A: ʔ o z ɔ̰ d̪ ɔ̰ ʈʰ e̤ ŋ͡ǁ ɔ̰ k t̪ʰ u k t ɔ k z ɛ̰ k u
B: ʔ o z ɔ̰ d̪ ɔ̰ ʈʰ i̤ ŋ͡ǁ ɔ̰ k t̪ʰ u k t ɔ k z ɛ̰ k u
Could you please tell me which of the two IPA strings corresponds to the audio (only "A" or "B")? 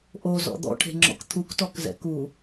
A